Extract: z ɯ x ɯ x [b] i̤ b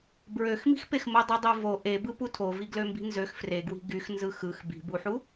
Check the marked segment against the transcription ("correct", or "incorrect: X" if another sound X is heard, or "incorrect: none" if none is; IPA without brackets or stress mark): correct